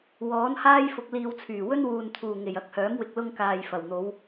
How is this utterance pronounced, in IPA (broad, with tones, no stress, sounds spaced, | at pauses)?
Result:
w ɔː˨˥ n h aː˥ j f ʊ˧ k̚ l iː˧ w t͡sʰ yː˨˩ w ɵ˥ n w uː˨ n t̪ʰ uː˨˩ ŋ e˨˩ j ɐ˨˥ k̚ h œː˨˥ m w ɪ˨ k̚ l ʊ˧ ŋ k aː˨ j f ɐ˨˩ w n̪ o˨˧ w